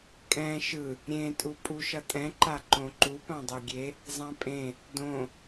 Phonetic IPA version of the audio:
kʼ ɛ̃ ʃ ɯ | ɾʲ ẽ tʼ u pʼ u ʃ ʌ tʼ ɛ̃ ǃ a ǃ õ ǃ u p ã dˤ e ɡʲ e | zˤ ã pʼ ẽ | d õ

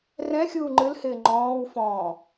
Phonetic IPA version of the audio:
r ɛ̃ xʲ uː ŋ͡ǃ ɨ l h ɪː ŋ͡ǃ ɔ̃ː w f ɔ̃ː

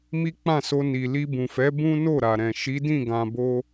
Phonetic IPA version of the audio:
m i˦ k͡p ã˦˨ s o˧ n i˨ l i˧ b ũ˨ f ɛ˨˦ b ũ˦ n o˦˨ ɾ a˨ ɾ ɛ̃˨ ʃ i˨˦ d ĩ˦˨ ɡ ã˨ b o˧

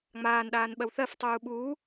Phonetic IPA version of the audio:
ŋ͡m aː n ɗ aː n ɓ ɜ w θ ɜ f tˤ uː ɓ uː

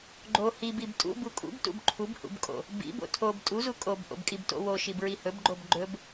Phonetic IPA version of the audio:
ɡ͡ǃ o h i b i b tʼ ṵ b u kʼ ṵ b t ṵ b ǃʰ u b h ṵ b kʼ o̰ | b ḭ b o̰ tʰ o b tʼ u z u kʼ o b ʔ o̰ b kʼ i b t o̰ w o ʃ i b ɹ i h ɵ b ɡ͡ǃ o b ɡ͡ǃ ɵ b

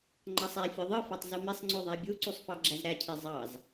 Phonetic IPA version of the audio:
ŋ͡ǃ ɑ sˤ æ fʲ o ðˤ ɯ f ɑ tˤ z u m e sˤ ŋ͡ǀ o ðˤ æ bʲ u ǀ u sˤ f ɑ ɡ͡ǁ æ z ɾ æ cʰ e zˤ ɑ z

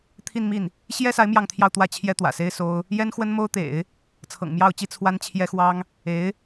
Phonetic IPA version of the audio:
t̪ʰ i˥˧ n m i˥˩ n | ɕ j ɛ˥ s a˧˥ ɪ̯ m j ɑ˥˧ ŋ t̪ʰ j ɑ˥˧ ʊ̯ t̪ w ä˥˩ t͡ɕʰ j ɛ˥ t̪ w ä̰˨˩ s e˥ ɪ̯ s o˥ ʊ̯ | j ɛ˥ n x w ə˥ n m o˥ ʊ̯ t̪ ḛ˨˩˦ ɪ̯ | t͡sʰ ɤ̰˨˩ ŋ m j ɑ˥˩ ʊ̯ t͡ɕ i˥ t͡sʰ w a˥ n t͡ɕʰ j ɛ˥ x w ɑ˥ ŋ | e˧˥ ɪ̯

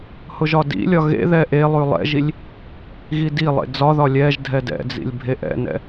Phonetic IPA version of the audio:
h ʊ ʒ ɒ d ḭ lʲ ɒ ɣ ḛ ð ɛ ʔ e lˠ ʉ lˠ ɛ̰ ʒ i lʲ | ɣ i d i lˠ ḛ d͡z ɒ ð ɒ lʲ ɛ ʒ dʱ ɛ d ɛ̰ d͡z ḭ lʲ bʱ e ʔ ɛ̰ n ɛ̰

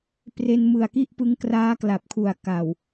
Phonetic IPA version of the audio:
p r e˧ n m ɯ˨˩ a̯ k i˥˩ ʔ p ɯ˦˥ ŋ k r aː˦˥ k l a˨˩ p̚ kʰ u˨˩ a̯ k a˨˩ w

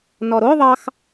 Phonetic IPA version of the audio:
n ɔ ɾ o ðˤ ɑ x

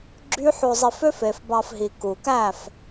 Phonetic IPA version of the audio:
ɡ͡ǁ y˦ ħ o˧ zˤ i˧ f ø˦ f e˨ f b ɑ˧ f ɦ i˨ k u˨ k æ˦˨ f

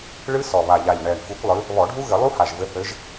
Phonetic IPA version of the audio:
ɭ ɨ˦˥ s ɔ˨˩ β a˨˩ ʎ a˨˩ ʎ ɳ ɛ˨˩ ɳ f u˨˦ kʷ lˠ ɨ˨˦ | β ɔ˧˩˧ ɖʱ u˦˥ ɣ ɘ˧˩˧ lˠ u˦˥ h a˨˩ ʒ v ɘ˨˦ θ ɘ˨˦ ʒ

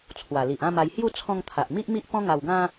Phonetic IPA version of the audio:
t͡sʰ w a˨˩ l i˨ ʔ ã˥˧ m a˧ j h j u˥˧ t͡sʰ ɔ̃˧ ŋ t̪ʰ a˨ ʔ m i˦ ʔ m i˦ ʔ p ɔ̃˦ ŋ a˧ w ɡ ã˦

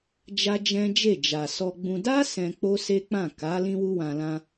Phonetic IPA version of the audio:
d͡ʒ a˦ d͡ʒ ɛ̃˦ d͡ʒ e˦˨ d͡ʒ a˨ s ɔ˧ ɡ͡b ũ˧ d a˦ s ɛ̃˧ k͡p o˦ s e˦ k͡p ã˦˨ k a˨˦ l ĩ˦ w u˦ w ã˧ l ã˧

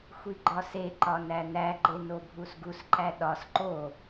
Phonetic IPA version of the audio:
xʷ i ɡ͡ǃ ɒ s e ǃ ɒ n æ n æ ɡ͡ǃ e n o bʱ u s ɡ u s ǃ æ ɗ ɒ s ǃ o

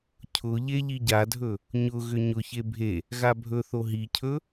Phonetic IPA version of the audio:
cʰ ʊ ʎ e ʎ i ɟ a dʱ ɵ | ɲ ʊ ɣ ʏ ɲ ʊ ç e bʱ e | ɣ a bʱ ɵ θ o ɦ i cʰ ɵ

